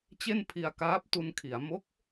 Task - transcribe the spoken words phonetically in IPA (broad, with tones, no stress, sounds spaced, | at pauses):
t͡ɕ e˥˩ n pʰ i˧ a̯ k aː˦˥ p̚ t u˧ n kʰ i˩˦ a̯ m o˦˥ k̚